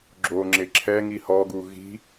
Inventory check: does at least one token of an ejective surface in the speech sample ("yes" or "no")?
no